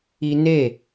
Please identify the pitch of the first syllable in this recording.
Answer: high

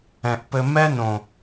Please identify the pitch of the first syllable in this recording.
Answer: low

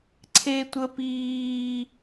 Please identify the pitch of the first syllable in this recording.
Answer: high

